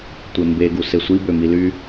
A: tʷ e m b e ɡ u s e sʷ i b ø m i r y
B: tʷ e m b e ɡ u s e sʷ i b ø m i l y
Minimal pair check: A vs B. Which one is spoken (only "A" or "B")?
B